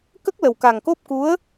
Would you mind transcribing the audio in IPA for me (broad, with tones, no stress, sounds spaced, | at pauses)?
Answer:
k ə˦˥ k̚ l ə˨˩ w k a˨˩ ŋ k o˦˥ p̚ k u˧˥ ə̯